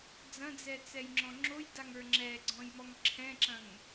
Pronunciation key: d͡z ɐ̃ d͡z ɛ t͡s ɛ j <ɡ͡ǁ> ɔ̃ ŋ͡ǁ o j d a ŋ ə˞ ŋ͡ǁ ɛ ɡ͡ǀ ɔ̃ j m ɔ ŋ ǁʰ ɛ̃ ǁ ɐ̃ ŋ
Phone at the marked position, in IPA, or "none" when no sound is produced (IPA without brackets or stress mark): ŋ͡ǁ